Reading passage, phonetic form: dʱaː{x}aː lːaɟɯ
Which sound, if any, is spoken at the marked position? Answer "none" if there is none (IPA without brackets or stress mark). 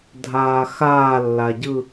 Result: x